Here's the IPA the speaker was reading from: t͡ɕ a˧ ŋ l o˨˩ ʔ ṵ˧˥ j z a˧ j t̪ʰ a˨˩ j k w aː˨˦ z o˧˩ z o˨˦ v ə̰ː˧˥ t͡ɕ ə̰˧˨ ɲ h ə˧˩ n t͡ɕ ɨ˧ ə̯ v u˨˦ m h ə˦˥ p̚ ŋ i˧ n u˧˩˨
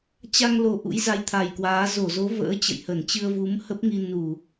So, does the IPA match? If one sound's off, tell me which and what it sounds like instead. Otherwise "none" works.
ɲ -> j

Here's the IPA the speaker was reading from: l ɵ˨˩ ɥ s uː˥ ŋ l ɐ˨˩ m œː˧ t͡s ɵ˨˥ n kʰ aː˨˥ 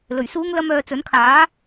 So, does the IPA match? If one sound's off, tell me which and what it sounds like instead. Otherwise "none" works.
ɐ˨˩ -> ɐ˥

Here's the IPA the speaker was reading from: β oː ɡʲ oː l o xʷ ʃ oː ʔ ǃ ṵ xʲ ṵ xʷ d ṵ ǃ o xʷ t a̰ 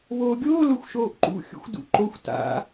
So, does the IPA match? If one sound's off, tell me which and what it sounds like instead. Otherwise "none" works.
none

